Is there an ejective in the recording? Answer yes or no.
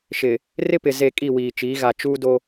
yes